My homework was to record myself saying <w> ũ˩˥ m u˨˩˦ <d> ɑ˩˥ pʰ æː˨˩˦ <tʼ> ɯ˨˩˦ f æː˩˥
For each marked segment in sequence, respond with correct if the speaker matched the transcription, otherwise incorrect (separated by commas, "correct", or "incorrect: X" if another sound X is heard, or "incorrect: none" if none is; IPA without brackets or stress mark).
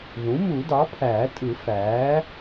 incorrect: ð, correct, correct